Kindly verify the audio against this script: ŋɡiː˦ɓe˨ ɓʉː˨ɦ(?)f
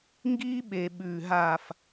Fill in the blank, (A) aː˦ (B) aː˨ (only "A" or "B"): B